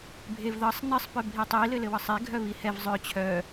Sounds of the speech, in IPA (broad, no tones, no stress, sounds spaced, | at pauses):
bʱ e v ð ɤ sˤ n ɘ sˤ p œ bʱ i tˤ i l ɘ l ɘ w ɤ sˤ e ɡʱ œ β i h ɛ v zˤ œ t͡ɕʰ œ